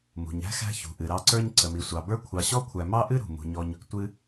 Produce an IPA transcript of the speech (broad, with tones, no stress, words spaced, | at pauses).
mṳ˩ɲæ̤˥xæ̤˦ çṳ˩ʔɨ˩ ɾɑ˦ǀə˞˥ɲ ǀə˩mi˩sʷɑ˩bə˞˥ kʷʰɑ˨ɕɔ˥kʷʰæ˨ mɑ˥ʔɨ˥ ɾṳ˩ mṳ˩ɲɔ˨ɲ | tʷɨ˦